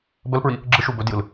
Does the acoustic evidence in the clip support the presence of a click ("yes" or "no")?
yes